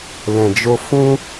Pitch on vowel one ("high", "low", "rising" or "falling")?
low